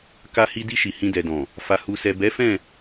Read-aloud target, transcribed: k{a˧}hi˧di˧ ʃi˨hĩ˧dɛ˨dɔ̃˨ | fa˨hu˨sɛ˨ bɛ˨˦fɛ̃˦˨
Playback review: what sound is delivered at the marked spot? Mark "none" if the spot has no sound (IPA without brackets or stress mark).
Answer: a˧